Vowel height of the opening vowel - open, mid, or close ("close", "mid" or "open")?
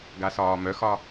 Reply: open